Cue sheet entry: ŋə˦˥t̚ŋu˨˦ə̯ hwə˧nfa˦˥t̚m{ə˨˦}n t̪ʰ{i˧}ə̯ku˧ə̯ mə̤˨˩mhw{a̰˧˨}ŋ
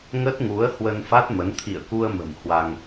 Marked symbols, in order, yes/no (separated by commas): yes, no, no